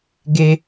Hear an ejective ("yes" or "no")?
no